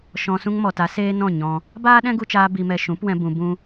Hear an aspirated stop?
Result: no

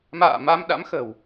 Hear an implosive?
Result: yes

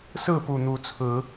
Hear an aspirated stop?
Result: yes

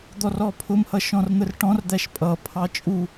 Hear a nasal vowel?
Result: yes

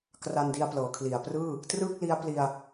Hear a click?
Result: no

